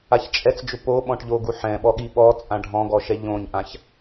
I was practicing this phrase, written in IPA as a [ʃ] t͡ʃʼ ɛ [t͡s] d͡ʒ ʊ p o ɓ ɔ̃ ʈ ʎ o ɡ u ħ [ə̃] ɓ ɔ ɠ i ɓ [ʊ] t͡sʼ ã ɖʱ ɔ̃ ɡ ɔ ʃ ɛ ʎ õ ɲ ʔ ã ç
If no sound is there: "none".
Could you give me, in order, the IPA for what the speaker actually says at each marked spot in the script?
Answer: ç, t͡s, ɛ̃, ɔ

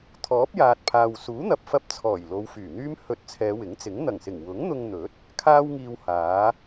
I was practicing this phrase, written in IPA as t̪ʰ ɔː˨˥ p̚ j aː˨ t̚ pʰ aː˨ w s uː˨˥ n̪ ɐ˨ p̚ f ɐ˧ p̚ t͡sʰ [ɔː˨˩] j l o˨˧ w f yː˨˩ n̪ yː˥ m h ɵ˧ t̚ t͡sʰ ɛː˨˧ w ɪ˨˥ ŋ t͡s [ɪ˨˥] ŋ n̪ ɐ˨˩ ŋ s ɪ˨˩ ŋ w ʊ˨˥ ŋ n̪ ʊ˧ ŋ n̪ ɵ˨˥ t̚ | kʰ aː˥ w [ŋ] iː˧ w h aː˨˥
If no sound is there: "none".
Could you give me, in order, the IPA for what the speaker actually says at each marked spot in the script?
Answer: ɔː˨˩, ɪ˨˥, ŋ

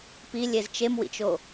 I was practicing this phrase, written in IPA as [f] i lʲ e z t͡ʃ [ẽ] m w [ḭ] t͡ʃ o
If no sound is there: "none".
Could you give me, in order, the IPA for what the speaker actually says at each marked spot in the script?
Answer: p, e, ḭ

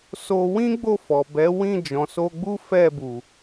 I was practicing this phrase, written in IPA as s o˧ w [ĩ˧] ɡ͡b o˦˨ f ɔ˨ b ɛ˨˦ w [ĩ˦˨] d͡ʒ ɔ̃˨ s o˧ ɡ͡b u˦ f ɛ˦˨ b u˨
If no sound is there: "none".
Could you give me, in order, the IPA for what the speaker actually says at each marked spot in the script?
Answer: ĩ˦, ĩ˦˨

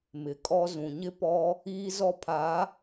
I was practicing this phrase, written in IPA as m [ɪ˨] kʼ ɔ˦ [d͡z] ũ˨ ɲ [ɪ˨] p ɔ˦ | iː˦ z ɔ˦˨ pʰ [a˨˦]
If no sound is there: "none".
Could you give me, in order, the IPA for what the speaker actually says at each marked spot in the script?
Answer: ɪ˨, z, ɪ˦, a˨˦

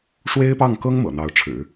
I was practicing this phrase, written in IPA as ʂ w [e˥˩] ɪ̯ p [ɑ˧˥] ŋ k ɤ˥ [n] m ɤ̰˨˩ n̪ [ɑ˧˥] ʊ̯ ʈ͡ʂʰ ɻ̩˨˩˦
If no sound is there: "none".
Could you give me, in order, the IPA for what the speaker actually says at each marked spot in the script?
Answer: e˥, ɑ˥˩, ŋ, ɑ˧˥

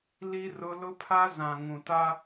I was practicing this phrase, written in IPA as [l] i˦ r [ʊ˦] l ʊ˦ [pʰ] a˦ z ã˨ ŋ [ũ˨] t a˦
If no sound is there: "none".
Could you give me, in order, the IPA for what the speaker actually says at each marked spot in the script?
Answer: l, ʊ˦, pʰ, ũ˨

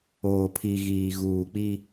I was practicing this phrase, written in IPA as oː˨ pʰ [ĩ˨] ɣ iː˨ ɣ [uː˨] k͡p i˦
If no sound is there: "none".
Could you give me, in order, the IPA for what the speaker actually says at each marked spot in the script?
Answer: i˨, uː˨

